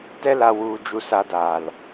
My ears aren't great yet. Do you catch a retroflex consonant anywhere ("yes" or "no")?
no